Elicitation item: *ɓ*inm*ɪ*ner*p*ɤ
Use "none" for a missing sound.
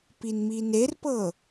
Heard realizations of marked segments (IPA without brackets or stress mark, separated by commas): p, i, p